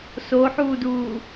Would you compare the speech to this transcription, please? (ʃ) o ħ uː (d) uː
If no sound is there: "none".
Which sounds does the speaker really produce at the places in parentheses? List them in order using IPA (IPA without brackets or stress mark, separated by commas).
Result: s, d